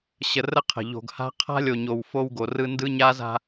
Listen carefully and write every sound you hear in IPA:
ɕ ə˨ r ə˦ qʰ ə̤˨ ʎ o̤˨ ɡ h a̤˦ qʰ a̤˦ lʲ o˨ ɲ o˨ w f o˦ w ɡ o˨ r ɯ˦ n d ɯ˦ ɲ a˦ z a̤˦

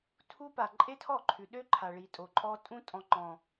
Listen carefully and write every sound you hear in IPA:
tʰ u˧ p a˨ ǃʼ e˦ tʰ ɔ˦˨ ǃʰ ʉ˨ ɗ ø˦ ǃʰ a˨ ɭ i˨ tʼ o˨ ǃʼ ɔ˧ tʼ ũ˧ tʼ ɔ̃˨ ŋ͡ǃ ɔ̃˨

